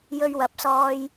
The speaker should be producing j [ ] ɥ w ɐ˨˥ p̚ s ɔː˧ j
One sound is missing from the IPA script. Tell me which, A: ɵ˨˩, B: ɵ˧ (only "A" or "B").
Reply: B